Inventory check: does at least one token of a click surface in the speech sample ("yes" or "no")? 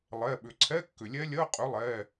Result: yes